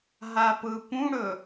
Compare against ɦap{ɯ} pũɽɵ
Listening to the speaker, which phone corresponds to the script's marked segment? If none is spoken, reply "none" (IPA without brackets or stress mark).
ɯ